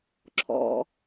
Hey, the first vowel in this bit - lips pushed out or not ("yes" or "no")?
yes